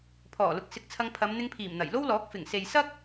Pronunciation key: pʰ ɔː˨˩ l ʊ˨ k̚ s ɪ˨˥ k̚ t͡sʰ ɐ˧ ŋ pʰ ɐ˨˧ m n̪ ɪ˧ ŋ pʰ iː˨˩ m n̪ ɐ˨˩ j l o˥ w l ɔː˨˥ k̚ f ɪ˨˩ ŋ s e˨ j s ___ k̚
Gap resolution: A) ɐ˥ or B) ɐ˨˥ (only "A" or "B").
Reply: A